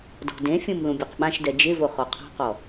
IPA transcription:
d ɔ̤ d ẽ fʲ ũ m l ũ bʲ u q ɓ ã ʃ d ɛ d͡ʒ ɪ v o χ ɔ qʰ ɔ̤ q ɔ

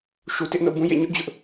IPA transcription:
ʃ u˨ t ɪ˦ ʔ n o̰˦˨ b ũ˦ j ḛ˦˨ ɲ ʊ˦ ʔ d͡ʑ ʊ˦ ʔ

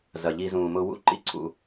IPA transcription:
z ɐ˨ ʎ i˧ z ũː˨ m ʊ˧ w ṵ˦˨ ǃ ḭ˦ ǀʰ ṵ˧

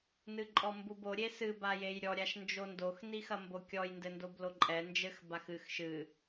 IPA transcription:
n ɨ ǃʼ ɔ m b u b o ɾʲ e s ɨ b a j e j ɾʲ ɔ ɾʲ a ʃ n d͡ʒ o n d o x n i x ɐ m b o kʲ ɔ j n d ɘ n d o b l o ǃʼ ɛ n d͡ʒ ɘ x b a x ɨ x ʃ ɨ

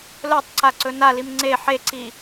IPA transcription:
l ɵ tˤ ǀ a ǀ ɵ n a l i m ŋ͡ǀ e ħ e ǀ i

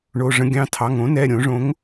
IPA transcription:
ɳ o˩˧˩ ʐ ə̃˧ ɡʲ ɑ̃˩˧˩ tʰ ɑ˩˧˩ ŋ õ˩˥ n ɛ˩˧˩ ɾʲ õ˨˩˦ ʐ õ˩˥ ŋ

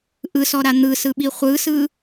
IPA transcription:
ʔ ɯ s ɔ ɾ a n̪ ɯ s ɯ ɓ i χʷ ɯ s ɯ

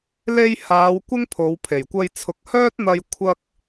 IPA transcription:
l e˧ j h aː˨˧ w kʷ ɪ˥ ŋ pʰ o˨˧ w pʰ e˨˩ j kʷ ɐ˧ j t͡sʰ ʊ˨˥ k̚ h œː˥ t̚ n̪ ɐ˧ j kʷʰ ɐ˥ k̚

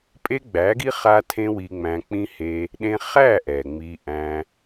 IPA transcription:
pʼ e˦ ɡ͡b æ˨˦ ɡ i˦ χ a˦ tʰ ẽ˦ w i˧ ŋ͡m æ̃˧ k͡p ĩ˦ h e˧ | ɗ ẽ˧ χ æ˦˨ ʔ ɛ˨ ŋ͡m i˧ ʔ æ̃˧

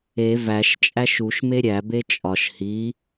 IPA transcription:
e v æ ʃ t͡ʃʼ æ ʃ u ʃ m e ɾʲ æ b e t͡ʃʼ ɒ ʃ h i

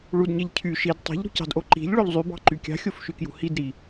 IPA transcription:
ɭ u d ɲ e ʎ cʰ y ʃ i d tˤ i̤ ʎ ɾ ṳ c ɑ̤ d ʔ o ǃ i̤ ʎ ɭ o ʎ zˤ y b ɑ̤ ǃ y kʲ ɑ̤ xʲ o f ʃ y k j ṳ h i d ɾ i

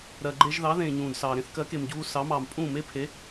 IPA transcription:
ɾ ɜ˩ ɡ͡ǃ e˧ ʒ ð ɑ˩˥ ð ẽː˩ ɲ ũː˩ d s ɑː˩ ɾ ẽ˥ θ k ɜ˩˥ k e˩ m ɟ uː˧ s ɑ˩˥ m ɑː˩ m pʼ ũː˥˩ m e˥ pʰ e˩˥

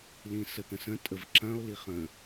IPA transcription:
l ĩ s ə t̪ ə̃ s ə̃ tʼ ə v ǁ ɐ̃ o̯ l i χ ə̃

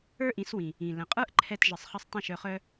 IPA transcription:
ə˞˥ ʔ ĩ˩˥ s w ĩ˩ | ĩ˩ l ə̃˩ qʼ ə˞˥ ʔ ǃʰ ɛ˧ t ʒ ə˩ sˤ χ ə˧ sˤ tˤ ə̃˥˩ ʃ œ˧ χ œ˥

